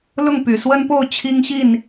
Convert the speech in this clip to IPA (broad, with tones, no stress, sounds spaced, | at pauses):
l ʊ˥˩ ŋ p y˨˩ s w ə˥ n p o˥˩ ʊ̯ t͡ɕʰ i˥ ŋ ɕ i˥˩ n